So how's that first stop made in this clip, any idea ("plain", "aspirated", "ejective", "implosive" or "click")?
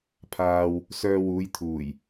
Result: aspirated